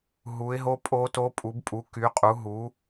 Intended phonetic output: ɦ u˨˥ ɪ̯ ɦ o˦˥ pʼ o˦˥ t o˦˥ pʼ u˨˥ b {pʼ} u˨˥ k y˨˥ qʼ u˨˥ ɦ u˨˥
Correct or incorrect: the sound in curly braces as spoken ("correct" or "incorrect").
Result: correct